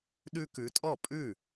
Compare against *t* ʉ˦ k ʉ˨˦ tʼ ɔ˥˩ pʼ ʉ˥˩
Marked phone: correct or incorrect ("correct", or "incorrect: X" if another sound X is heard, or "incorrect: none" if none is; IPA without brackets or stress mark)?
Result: incorrect: ɗ